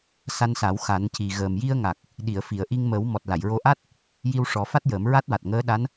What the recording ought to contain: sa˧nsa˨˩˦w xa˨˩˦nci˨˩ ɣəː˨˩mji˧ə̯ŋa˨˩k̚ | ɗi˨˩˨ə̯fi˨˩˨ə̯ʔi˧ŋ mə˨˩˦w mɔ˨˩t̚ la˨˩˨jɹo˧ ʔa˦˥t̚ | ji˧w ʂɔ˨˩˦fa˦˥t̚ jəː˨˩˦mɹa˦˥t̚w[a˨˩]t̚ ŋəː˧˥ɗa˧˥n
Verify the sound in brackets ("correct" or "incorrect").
correct